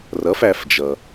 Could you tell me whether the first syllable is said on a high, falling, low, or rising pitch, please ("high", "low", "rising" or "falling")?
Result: rising